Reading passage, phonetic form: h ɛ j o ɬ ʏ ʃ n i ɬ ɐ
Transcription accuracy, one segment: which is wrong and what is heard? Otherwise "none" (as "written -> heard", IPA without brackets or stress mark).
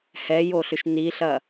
none